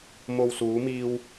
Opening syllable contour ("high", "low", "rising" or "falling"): low